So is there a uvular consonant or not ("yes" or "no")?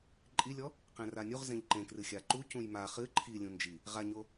yes